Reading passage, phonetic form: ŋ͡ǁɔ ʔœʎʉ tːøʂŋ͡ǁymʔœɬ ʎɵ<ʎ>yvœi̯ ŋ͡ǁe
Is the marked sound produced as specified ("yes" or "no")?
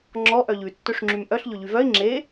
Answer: yes